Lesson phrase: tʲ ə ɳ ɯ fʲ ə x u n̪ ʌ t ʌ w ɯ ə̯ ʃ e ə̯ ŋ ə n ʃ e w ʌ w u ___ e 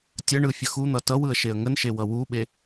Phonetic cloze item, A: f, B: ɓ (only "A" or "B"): B